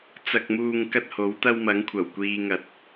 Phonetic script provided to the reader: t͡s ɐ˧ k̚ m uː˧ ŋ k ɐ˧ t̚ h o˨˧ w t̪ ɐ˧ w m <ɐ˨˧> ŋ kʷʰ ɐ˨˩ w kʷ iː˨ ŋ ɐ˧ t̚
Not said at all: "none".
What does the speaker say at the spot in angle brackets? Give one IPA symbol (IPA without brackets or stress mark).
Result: ɐ˨˧